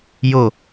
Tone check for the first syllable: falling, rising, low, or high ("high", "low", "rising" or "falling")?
falling